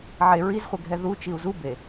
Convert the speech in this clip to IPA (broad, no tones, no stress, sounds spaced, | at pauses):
ʕ e ɹ i z χʷ ɛ ɡʱ ɛ ð u t͡ʃ i u̯ z u b e